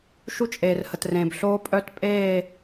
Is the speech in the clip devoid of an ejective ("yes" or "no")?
no